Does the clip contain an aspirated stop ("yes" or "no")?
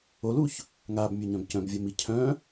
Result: yes